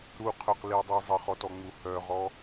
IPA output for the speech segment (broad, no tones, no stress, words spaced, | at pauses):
ɾuqʰœqlidˤi zˤəχɔtɔŋ͡mu hœʁɔ